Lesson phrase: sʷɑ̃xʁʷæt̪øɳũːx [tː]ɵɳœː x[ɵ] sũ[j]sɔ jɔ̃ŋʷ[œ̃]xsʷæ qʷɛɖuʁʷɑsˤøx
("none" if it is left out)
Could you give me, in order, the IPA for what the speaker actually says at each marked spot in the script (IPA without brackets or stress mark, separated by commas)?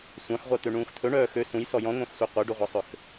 t̪ʰ, ø, j, œ̃